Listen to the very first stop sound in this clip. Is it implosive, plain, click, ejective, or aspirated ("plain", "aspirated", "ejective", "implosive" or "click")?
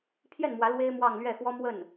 aspirated